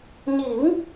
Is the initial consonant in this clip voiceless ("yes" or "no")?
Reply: no